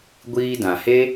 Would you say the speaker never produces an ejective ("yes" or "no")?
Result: yes